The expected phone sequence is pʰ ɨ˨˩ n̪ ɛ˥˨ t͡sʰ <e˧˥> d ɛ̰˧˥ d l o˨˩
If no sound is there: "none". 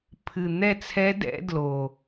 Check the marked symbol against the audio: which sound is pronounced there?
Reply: ɛ˧˥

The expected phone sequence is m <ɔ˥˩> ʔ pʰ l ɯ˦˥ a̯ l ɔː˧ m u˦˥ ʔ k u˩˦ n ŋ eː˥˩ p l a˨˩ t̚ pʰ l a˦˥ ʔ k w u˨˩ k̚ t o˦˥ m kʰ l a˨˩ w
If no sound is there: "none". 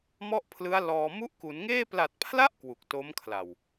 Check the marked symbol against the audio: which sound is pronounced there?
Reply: ɔ˥˩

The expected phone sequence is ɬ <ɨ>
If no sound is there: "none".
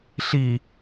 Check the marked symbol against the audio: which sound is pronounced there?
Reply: i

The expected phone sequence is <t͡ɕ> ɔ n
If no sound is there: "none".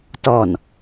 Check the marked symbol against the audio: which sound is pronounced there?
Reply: t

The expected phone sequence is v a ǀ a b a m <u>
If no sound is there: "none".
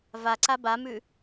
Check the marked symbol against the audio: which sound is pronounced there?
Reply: ʉ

